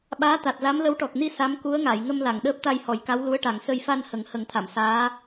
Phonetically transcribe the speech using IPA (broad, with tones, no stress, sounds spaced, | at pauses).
ɓ aː˧˥ t̪ a˨˩ t̚ l a˧˥ m l ə˧˥ w ʈ ɔ˨˩ k̚ n i˧ s a˧˥ m k u˧˥ ə̯ ŋ a˨˩˨ j ŋ ə˧ m l a˨˩˨ ŋ ɗ əː˦˥ p̚ t̪ a˧ j h ɔ˨˩˦ j k a˧˥ w l u˧˥ ə̯ ʈ a˨˩ ŋ s ə˧ j f a˧ n h ə˨˩˦ ŋ h ə˨˩˦ ŋ t̪ʰ a˨˩˨ m s aː˧˥